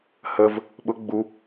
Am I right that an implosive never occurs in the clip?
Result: no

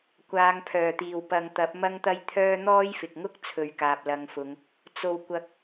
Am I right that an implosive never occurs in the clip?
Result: yes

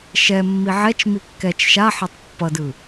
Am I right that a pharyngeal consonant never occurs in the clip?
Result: no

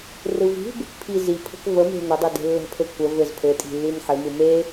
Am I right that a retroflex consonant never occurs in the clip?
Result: yes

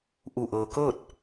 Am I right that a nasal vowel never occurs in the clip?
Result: yes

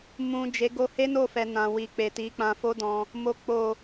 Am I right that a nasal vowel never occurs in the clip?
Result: no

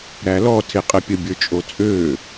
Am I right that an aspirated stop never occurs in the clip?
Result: no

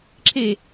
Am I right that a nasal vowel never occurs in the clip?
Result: yes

